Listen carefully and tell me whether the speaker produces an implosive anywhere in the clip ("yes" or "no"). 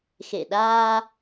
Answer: yes